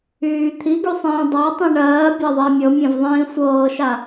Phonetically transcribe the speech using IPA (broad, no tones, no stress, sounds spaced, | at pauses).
yː t̪ʰ i ɡ y sˤ ĩː dˤ a tˤ ĩ ɳ ɜː bʲ a ðˤ a mʲ ɤ mʲ ɛ̃ v ðˤ ĩː sʷ ɤː ʃ a